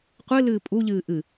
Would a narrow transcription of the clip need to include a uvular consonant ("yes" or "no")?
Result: yes